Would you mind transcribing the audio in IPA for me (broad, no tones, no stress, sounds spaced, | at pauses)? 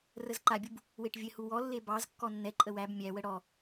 r ə z ǃ a bʲ u b | w e ʈ vʲ ɘ h u w ɔ lː e b ɑ z kː ɔ nː ɛ ǃʼ ə w æ b mʲ æ w ə ɽ ɔ